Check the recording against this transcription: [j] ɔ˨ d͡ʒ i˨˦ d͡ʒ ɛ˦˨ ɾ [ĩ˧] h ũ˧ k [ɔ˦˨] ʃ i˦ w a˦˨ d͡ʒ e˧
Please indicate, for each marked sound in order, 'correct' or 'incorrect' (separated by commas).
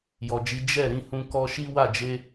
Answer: correct, correct, incorrect